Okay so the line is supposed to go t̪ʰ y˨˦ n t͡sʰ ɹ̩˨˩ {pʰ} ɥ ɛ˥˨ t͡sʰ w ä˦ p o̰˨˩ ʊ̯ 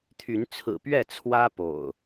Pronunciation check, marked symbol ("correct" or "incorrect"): incorrect